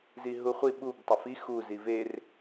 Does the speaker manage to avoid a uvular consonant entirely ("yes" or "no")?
no